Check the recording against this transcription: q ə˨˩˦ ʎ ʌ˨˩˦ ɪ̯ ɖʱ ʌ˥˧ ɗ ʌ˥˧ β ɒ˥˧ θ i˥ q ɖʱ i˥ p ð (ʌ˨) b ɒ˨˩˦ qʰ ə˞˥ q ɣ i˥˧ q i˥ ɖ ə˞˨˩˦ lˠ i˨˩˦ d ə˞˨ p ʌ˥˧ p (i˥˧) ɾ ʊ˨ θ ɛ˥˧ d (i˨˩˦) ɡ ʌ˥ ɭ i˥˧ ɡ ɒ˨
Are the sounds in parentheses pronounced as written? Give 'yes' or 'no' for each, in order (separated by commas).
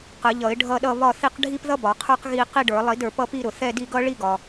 no, yes, no